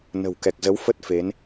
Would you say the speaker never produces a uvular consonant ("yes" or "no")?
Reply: yes